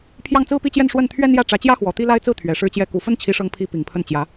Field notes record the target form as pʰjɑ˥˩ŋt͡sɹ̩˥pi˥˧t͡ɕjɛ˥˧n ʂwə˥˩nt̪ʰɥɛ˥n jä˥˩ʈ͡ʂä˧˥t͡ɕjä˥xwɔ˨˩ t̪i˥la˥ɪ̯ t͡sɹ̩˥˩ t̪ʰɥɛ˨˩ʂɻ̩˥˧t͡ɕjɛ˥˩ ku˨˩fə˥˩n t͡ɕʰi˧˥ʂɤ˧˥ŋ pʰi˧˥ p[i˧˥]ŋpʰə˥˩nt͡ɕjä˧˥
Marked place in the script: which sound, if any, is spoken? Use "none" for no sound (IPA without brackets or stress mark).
i˨˩